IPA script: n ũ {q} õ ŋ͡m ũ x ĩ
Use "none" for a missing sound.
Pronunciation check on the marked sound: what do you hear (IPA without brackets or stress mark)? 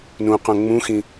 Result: q